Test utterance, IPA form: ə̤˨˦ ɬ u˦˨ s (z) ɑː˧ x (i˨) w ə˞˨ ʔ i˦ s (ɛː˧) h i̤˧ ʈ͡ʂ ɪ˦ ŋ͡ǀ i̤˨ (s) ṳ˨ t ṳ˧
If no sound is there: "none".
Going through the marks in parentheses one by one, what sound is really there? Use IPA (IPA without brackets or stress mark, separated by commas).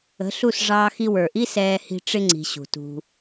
ʐ, i˧, ɛː˧, ɕ